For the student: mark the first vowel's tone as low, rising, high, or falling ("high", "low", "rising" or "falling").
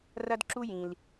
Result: high